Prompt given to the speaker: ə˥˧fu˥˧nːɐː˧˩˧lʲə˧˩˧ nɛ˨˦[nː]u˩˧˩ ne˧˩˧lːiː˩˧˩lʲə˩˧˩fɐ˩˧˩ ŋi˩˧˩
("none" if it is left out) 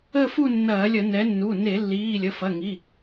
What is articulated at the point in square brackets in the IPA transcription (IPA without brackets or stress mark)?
nː